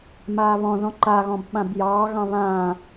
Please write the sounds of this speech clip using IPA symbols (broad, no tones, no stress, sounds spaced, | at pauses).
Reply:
m aː β ɔ̃ ð ɔ̃ ǃ a ɣ ɔ̃ b ɓ ã b j ɑː ɣ ɑ̃ β ã